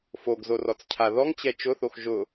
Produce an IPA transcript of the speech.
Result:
f o ɡ z o r ɔ t͡s cʰ a ð ɔ ŋ t͡ɕ ɛ t͡ʃ ʊ θ o x ʒ ʊ

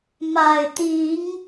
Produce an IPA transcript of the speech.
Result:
m a˨˩ ɪ̯ t̪ i˨˦ ŋ

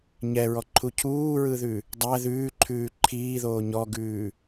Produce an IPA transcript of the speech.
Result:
ɲ ɛ ɹ ɔ ǃʰ u cʰ uː ɹ ɯ ð ʉ | dˤ æ ð ʉː ǃʰ ʉː ǃʰ iː ð oː ɲ ɔ ɡ ʉː

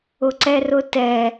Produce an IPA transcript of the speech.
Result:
ʊ ǀ ɛ r ʊ t ɛ

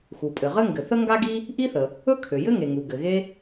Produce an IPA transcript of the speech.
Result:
x u˩ pʼ ɘ˩ ʁ ɘ˥ ŋ ɡ ɘ˩ θ ə˥ ŋ ɡ a˥ ɡ i˥ | ʔ i˥ θ ə˩ | ɵ˥ kʰ ø˩ j ɘ˥ ŋ e˩ ŋ u˩ ɡ ɘ˩ ɣ e˥

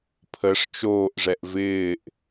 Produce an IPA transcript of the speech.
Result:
pʰ ə ʂ t͡ʃ oː ʔ ʐ ɛ ʔ v ɪː ʔ

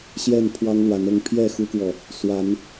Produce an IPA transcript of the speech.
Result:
ɕ j ɛ˥˨ n pʰ w ɑ˦ ŋ l w a˨˦ n ɤ˥˨ ŋ pʰ j ɛ˥˨ x u˦ k w ɔ˨ | s w a˨˦ n

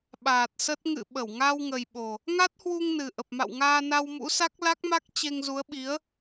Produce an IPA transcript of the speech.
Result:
ɓ aː˨˩ t̚ s ə˦˥ t̚ ŋ ɨ̰˧˨ ɓ ə˧˩ w ŋ a˧ w ŋ ə˨˩ j ɓ o˨˩ | ŋ a˦˥ t̚ h w u˧ ŋ n ɨ˨˩ ʔ ə˨˩ p̚ m a̰˧˨ w ŋ aː˧ n a˧ w m ṵ˧˥ s a˦˥ k̚ l a˦˥ k̚ m a˦˥ k̚ t͡ɕ e˧ ŋ z u˨˦ ə̯ ɓ i˨˦ ə̯

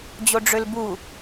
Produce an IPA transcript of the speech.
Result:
d͡ʑ o ɖ͡ʐ ø l b u

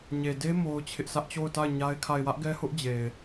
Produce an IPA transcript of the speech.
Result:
ɲ e˨ d e˦ m o˦ ʊ̯ t͡ɕʰ ɪ˦ ʔ s ä˦ ʔ t͡ɕ o˦˨ ʊ̯ t a˦˨ ɪ̯ ɲ a˦ ɪ̯ kʰ a˦˨ ɪ̯ w ä˦ ʔ ɡ ɛ˦ h ʊ˦ ʔ d͡ʑ e˨ ɪ̯

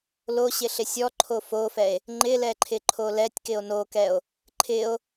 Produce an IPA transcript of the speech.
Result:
l o ɕ ɪ ɬ ɪ sʲ ɔ ǃʰ o f o f ɛ e̯ | ŋ͡ǃ ɪ l ɛ ǃʰ ɪ ǃʰ o l ɛ tʲ k ɪ o̯ n o k ɛ o̯ | ǃʰ ɪ o̯

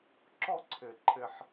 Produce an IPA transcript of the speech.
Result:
ǁ ɔ˥ ǀʰ ɘ˧˩˧ ǃʰ ɘ˧ ħ

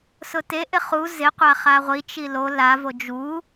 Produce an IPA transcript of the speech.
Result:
s ʊ t e ʔ ɪ χ u z ɪ qʷ a χ a ʁʷ i t͡ʃ i l o l a v o d͡ʒ u

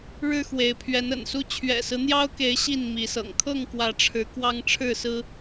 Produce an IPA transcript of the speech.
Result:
ɻ ɻ̩˦ x w e˨˦ ɪ̯ pʰ ɥ ɛ˨˦ n ə̰˨˩ n s u˦ t͡ɕʰ ɥ ɛ̰˨˩ s ɹ̩˦ n̪ j ɑ˦ ʊ̯ k e˨˦ ɪ̯ ɕ i˥˨ n m i˨˦ s ɤ̰˨˩ ŋ kʰ ɤ˥˨ ŋ k w ä˨˦ ʈ͡ʂʰ ɻ̩˨˦ k w ɑ˦ ŋ ʈ͡ʂʰ ɻ̩˥˨ s ɹ̩˦

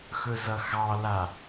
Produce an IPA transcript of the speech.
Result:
x ɵ z ʌ x ɑ l a

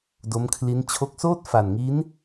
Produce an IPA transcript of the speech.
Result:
d o˦˥ m kʰ l i˦˥ n t͡ɕʰ o˦˥ k̚ s oː˥˩ t̚ f a˨˩ n ŋ i˦˥ n

